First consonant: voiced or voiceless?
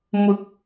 voiced